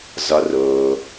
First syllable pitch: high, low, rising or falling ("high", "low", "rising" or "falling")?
rising